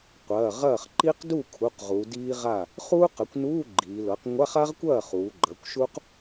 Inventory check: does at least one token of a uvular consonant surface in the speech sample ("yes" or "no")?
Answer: yes